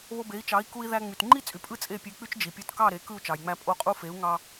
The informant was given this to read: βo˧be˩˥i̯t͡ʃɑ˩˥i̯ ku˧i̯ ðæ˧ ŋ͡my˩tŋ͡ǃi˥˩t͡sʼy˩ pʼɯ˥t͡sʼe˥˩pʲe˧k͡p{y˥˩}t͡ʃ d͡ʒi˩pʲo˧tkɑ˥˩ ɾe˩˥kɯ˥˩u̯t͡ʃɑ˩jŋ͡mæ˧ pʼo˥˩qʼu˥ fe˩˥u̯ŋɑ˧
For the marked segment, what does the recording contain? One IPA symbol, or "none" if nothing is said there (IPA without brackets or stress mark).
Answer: y˥